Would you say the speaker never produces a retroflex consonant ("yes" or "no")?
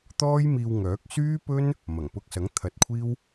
yes